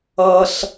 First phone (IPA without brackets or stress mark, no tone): ʌ